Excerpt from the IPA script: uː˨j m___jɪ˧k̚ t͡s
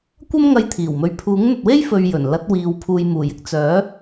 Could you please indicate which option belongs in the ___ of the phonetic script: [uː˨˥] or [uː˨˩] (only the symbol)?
uː˨˩